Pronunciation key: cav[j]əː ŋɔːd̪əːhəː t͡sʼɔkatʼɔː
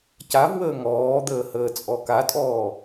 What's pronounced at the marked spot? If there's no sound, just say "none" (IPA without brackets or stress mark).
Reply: w